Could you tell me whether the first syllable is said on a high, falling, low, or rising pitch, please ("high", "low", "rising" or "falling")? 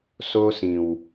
high